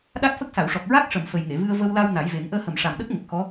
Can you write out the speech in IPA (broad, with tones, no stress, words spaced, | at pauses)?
ɗa˦˥t̚fə˦˥k̚sa˨˩˨wʂɔ˨˩k̚ ɹa˦˥k̚ʂə˨˩˨m fə˨˩jŋe˨˩˨vɨ˧ə̯ və˧wla˧w na˨˩˦jve˨˩˦ŋ ʔəː˧hə˨˩mʂa˨˩mɗə˦˥k̚ ŋə˨˩k̚xɔ˧˥